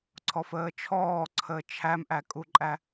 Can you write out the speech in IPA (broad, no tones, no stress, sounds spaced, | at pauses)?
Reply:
ǀʰ ɔ f əː t͡ʃʰ ɔː ǀʰ əː t͡ʃʰ æ m ʔ æ kʼ u ǃʼ æ